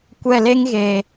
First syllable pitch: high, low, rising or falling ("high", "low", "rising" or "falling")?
falling